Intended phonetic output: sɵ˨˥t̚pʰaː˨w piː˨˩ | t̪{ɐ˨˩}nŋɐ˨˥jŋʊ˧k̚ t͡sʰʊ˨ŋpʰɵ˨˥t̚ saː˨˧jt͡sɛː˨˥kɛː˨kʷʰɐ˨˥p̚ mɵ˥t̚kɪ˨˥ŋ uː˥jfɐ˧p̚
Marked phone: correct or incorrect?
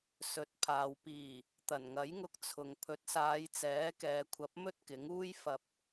correct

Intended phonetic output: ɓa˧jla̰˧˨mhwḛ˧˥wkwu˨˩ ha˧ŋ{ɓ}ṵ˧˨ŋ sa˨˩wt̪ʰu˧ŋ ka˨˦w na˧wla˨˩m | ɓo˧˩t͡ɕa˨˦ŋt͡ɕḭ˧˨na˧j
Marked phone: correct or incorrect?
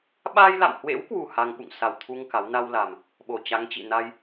correct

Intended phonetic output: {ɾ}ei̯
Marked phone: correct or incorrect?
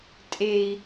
incorrect: tʼ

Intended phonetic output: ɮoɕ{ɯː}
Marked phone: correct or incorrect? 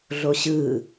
correct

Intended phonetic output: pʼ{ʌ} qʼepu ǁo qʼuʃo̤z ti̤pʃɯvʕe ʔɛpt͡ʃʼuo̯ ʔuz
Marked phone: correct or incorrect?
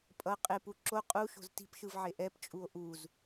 correct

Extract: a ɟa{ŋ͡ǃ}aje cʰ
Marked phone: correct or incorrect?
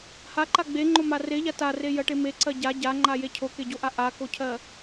correct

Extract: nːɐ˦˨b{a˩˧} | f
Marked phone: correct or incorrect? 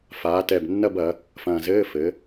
incorrect: ɐ˩˧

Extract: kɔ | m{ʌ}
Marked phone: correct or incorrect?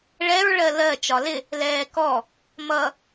correct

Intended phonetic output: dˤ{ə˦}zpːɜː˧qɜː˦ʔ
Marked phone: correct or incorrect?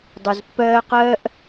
incorrect: ə˨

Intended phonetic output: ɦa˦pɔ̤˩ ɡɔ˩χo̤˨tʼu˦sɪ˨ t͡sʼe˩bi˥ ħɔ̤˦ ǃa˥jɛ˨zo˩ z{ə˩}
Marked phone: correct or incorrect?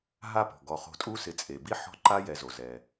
incorrect: ɛ˩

